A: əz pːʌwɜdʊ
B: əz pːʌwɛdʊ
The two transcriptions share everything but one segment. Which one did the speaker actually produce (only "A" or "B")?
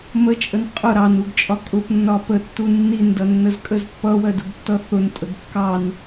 A